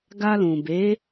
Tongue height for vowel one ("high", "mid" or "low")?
low